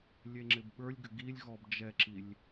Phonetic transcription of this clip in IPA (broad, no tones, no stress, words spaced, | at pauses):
lʲeŋ͡ǁɪbɓə˞lʲɡʏ ɡilʲɣɔb d͡ʒɛǁilʲ